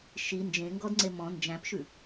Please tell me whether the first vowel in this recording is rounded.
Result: no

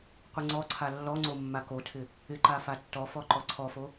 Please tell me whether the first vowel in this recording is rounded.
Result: no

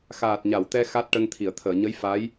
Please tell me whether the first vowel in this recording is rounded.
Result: no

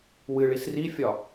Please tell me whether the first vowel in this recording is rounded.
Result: no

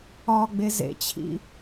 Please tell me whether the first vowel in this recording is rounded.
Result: yes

